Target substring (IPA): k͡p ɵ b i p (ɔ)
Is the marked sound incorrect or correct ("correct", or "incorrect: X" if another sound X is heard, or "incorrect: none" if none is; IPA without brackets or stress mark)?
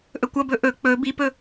incorrect: ɵ